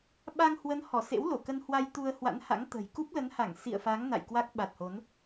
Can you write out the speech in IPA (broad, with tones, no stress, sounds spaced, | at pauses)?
ɓ a˧ ŋ h w ə˨˦ n h ɔ˧˩ s ḛ˧˥ w l o˧˩ k ə˧ n h w a˧ j t̪ u˧ ə̯ h w a̰˧˥ n h a̰˧˥ ŋ t̪ ə̤˨˩ j k u˦˥ p̚ l ə˨˦ n h a˧˩ ŋ s ḭ˧˨ ə̯ f a˨˦ ŋ n a̰˧˨ j k w a˦˥ k̚ ɓ a˨˩ t̚ h o˨˦ n